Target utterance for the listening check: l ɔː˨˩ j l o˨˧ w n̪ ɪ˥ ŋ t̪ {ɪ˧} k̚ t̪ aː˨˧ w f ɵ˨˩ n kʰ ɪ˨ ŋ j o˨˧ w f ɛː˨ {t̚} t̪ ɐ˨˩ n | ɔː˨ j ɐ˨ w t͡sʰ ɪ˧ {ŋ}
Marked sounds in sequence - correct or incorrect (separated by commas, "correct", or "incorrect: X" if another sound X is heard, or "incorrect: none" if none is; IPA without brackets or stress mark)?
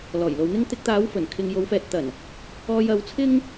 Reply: correct, correct, correct